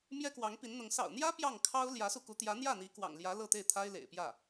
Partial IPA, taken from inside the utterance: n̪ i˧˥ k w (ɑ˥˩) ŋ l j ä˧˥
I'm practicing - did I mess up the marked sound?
yes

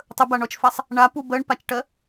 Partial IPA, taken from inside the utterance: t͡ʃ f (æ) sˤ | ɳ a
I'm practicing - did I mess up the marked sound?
no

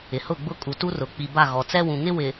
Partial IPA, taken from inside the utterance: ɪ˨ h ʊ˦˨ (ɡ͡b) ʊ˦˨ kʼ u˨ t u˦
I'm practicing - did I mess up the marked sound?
no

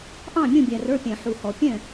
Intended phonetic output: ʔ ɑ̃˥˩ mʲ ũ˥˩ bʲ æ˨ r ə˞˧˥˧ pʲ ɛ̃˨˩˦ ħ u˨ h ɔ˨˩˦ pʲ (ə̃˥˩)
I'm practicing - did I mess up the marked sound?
yes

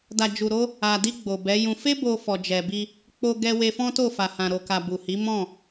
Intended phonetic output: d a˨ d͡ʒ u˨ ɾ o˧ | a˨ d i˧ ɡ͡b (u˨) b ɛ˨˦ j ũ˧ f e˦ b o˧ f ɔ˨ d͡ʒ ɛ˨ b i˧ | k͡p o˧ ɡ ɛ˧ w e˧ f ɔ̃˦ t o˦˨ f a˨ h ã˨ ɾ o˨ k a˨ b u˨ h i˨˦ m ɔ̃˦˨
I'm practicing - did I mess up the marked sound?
yes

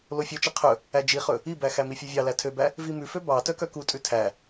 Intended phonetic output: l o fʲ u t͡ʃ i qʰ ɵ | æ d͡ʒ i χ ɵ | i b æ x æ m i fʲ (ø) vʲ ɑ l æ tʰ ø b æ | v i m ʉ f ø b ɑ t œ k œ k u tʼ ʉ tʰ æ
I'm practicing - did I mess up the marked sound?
no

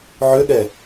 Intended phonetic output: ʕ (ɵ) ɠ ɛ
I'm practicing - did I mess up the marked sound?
yes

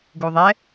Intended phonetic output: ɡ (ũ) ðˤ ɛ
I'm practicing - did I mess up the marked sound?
yes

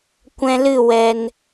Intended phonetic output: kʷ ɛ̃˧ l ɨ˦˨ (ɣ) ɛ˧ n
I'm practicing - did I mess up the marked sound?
yes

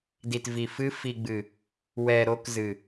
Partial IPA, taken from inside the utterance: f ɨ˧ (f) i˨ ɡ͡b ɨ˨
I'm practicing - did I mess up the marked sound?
no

